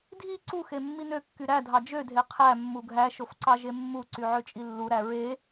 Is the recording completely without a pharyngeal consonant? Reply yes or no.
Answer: no